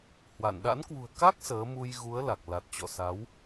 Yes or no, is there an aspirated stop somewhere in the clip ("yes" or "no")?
no